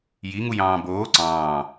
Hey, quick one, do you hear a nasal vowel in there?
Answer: yes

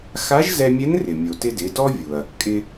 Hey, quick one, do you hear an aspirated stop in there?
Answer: no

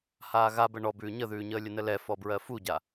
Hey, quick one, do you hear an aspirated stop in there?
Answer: no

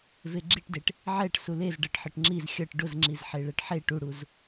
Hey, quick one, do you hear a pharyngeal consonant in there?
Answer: yes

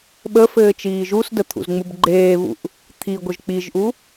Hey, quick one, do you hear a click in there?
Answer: yes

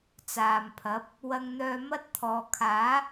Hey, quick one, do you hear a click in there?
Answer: no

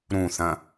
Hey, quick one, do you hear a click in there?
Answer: no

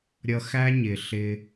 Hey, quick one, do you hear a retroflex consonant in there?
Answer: no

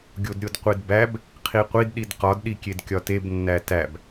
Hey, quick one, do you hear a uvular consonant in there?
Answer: yes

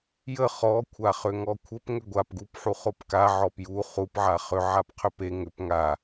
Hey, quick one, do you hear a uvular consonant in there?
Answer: yes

